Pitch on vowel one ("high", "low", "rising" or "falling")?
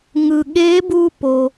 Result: low